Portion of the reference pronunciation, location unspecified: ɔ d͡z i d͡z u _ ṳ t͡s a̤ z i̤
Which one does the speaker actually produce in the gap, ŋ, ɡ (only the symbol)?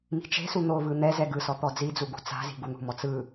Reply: ɡ